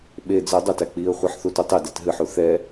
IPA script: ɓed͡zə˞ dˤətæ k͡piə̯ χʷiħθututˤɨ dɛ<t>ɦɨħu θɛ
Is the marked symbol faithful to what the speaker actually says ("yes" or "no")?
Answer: yes